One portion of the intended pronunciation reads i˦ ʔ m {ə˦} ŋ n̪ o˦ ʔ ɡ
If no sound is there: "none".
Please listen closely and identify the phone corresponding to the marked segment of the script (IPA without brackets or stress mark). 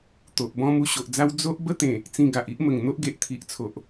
ə˨˩